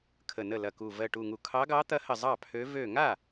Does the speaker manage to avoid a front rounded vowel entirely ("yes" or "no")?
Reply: no